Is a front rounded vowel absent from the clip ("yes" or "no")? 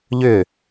no